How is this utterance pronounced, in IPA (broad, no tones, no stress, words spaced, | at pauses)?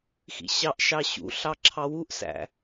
xḭɕɑʔʃɑ ɕṵɬɑ ǁʰɑwuʔsæ̰